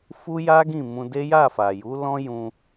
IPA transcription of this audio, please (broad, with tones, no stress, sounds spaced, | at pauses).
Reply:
f u˦ j a˦ ɡ ĩ˦˨ m ũ˧ d e˦ j a˦˨ f a˨ j u˨˦ l ɔ̃˦ j ũ˧